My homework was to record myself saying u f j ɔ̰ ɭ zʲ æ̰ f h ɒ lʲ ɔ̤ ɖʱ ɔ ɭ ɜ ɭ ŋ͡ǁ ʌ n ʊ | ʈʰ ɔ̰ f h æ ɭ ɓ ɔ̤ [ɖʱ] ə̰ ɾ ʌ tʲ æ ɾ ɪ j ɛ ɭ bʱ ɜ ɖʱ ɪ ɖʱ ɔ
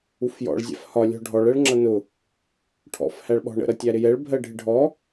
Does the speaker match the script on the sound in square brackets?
no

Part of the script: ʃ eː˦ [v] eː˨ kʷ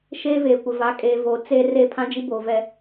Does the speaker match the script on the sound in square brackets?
yes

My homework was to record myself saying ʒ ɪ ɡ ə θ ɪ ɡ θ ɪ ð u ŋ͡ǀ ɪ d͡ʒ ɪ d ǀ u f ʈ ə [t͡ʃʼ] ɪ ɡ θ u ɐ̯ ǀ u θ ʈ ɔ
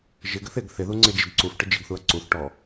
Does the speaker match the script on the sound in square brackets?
no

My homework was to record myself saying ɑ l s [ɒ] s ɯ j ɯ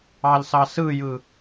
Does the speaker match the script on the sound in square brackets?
no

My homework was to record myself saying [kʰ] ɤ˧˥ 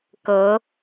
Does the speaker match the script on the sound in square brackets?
no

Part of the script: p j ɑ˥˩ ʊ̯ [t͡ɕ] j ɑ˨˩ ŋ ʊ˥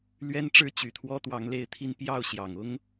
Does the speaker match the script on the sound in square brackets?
no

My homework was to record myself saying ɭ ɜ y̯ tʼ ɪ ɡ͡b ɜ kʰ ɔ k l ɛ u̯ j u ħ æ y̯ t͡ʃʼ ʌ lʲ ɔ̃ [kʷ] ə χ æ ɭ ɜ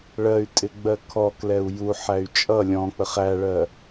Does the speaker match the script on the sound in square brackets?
no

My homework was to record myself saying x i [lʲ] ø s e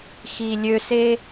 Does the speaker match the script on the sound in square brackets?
yes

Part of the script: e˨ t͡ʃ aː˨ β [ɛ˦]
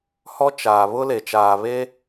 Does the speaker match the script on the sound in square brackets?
no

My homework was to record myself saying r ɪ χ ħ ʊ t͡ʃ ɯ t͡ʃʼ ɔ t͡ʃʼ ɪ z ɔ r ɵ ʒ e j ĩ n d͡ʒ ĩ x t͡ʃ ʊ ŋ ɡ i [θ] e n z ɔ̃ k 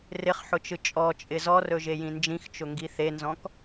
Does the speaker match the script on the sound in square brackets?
yes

